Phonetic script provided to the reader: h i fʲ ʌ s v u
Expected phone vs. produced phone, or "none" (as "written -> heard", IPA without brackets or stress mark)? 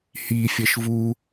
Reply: s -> ʃ